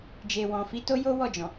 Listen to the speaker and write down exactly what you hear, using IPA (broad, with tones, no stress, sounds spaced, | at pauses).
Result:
d͡ʒ e˨ w ɔ̃˨ f i˨˦ t o˦ j o˦ w ɔ˦˨ d͡ʒ ɔ̃˨